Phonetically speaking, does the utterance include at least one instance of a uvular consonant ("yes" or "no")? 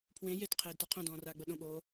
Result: yes